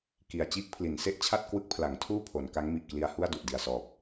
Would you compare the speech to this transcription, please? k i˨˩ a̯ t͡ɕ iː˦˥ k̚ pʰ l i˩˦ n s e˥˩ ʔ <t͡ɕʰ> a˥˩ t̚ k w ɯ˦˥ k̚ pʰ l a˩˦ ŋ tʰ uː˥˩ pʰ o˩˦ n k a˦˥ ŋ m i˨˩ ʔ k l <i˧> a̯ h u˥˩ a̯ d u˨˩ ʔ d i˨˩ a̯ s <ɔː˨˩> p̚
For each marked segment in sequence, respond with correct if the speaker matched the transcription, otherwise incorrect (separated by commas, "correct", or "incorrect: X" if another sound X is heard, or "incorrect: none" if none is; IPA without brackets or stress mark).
correct, correct, correct